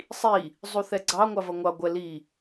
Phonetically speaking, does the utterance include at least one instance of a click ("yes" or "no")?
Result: yes